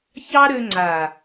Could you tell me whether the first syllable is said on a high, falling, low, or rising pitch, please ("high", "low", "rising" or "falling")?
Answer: high